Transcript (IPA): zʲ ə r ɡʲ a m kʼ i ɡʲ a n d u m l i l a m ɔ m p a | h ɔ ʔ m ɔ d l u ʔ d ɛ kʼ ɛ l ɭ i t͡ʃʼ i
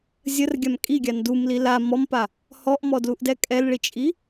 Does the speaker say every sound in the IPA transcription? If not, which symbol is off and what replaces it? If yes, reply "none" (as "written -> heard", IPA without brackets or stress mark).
none